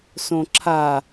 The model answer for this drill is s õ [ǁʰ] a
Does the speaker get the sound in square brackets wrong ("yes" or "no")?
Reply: no